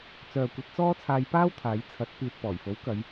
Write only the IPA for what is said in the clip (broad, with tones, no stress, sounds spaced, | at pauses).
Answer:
t͡s œː˨ kʷ ɐ˧ t̚ t͡s ɔː˥ t͡sʰ aː˧ j p aː˥ w t̪ʰ aː˨˧ j t͡sʰ ɐ˨˥ t̚ p iː˨ t̚ p ɔː˨˩ j f o˨˥ w k ɐ˨˧ j